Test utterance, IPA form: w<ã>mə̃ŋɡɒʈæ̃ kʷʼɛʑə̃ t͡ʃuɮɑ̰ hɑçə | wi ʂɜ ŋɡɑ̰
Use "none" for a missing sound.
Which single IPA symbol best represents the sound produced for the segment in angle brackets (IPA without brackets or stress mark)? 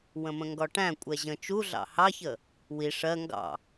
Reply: ə̃